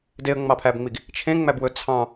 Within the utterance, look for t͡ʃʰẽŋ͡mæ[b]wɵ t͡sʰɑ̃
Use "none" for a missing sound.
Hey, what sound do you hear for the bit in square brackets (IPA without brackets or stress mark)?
b